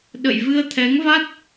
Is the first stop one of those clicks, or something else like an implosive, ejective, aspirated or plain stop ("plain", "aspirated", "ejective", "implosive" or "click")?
implosive